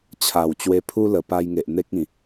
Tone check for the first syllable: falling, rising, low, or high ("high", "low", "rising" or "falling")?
low